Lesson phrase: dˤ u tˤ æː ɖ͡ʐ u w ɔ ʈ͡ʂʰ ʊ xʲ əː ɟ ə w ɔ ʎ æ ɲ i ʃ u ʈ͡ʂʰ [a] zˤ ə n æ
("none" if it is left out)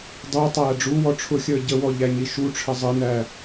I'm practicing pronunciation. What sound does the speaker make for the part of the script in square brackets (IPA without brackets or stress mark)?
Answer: ə